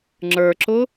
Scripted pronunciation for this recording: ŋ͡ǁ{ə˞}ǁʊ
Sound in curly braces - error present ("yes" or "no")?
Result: no